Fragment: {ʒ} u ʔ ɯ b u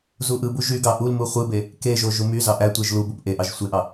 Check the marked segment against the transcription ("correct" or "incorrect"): incorrect